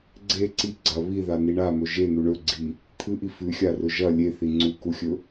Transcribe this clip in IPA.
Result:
ɡ͡ǀ e ǀ i ɡ͡ǀ ɐ β i ð a n i ɳ a m ɵ ʒ e n̪ u ɳ ɵ ɡ͡ǀ i | t̪ʰ ɨ ʔ i f ʉ xʲ a r ɵ ʒ ɐ lʲ e θ i ŋ͡ǀ u k u xʲ ɵ

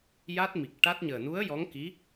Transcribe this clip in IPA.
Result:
j a˦˥ t̚ m i˨˩ k̚ ʈ a˦˥ t̚ ɲ əː˨˩ n u˧˥ ə̯ j ɔ˧˥ ŋ k i˧˥

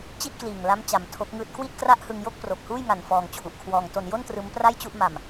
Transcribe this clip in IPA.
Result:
t͡ɕ i˥˩ t̚ k l iː˨˩ ŋ l a˦˥ m t͡ɕ a˧ m tʰ o˦˥ k̚ ŋ ɯː˦˥ t̚ k w i˥˩ t̚ k r a˥˩ ʔ h ɯ˧ ŋ j o˥˩ k̚ p r o˨˩ k̚ h uː˥˩ j ŋ a˨˩ n f ɔː˧ ŋ t͡ɕʰ u˨˩ ʔ kʰ w ɔː˧ ŋ t o˧ n j o˥˩ n t r ɯː˦˥ m p r a˥˩ j t͡ɕ u˥˩ ʔ m a˧ m

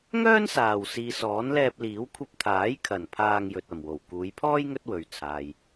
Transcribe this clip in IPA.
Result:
ŋ œː˥ n s aː˨˩ w s iː˨ s ɔː˨˥ n l ɛː˧ p̚ l iː˨˥ w kʷʰ ɐ˧ p̚ t̪ʰ aː˨˥ j kʰ ɐ˨˩ n pʰ aː˧ ŋ j ɵ˨ t̚ ɐ˨˩ m w o˨˩ w k uː˨˧ j pʰ ɔː˥ j ŋ ɵ˥ t̚ w ɵ˨ ɥ t͡sʰ aː˨ j

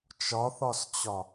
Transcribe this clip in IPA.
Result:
t͡ʃ ɒ θ ɒ s t͡ɕ ɒ

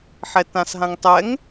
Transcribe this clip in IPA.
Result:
ħ ɛ t ã s ɦ ã ŋ tˤ ɛ ŋ

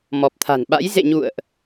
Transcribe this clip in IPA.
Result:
m ɔ˨˩ p̚ t̪ʰ a̤˨˩ n ɓ a̰˧˥ j z ḛ˧˨ ɲ ṵ˧˨ ə̯ ʔ

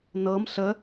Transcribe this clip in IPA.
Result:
n ɤ m ɬ ə

